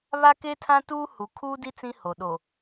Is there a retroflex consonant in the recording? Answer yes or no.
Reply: no